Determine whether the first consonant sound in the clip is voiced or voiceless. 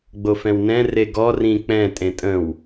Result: voiced